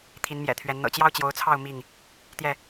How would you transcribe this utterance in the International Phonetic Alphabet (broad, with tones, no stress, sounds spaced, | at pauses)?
t̪ʰ i˨˦ n m j ɛ̰˨˩ t̪ʰ ɥ ɛ˨˦ n n̪ ɤ̰˨˩ t͡ɕ j ɑ˦ ʊ̯ t͡ɕ j o˨˦ ʊ̯ t͡sʰ ɑ˥˨ ʊ̯ m i˥˨ ŋ | t̪ j ɛ˥˨